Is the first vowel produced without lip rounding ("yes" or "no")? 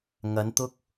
yes